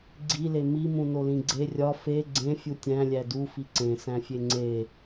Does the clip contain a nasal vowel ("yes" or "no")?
yes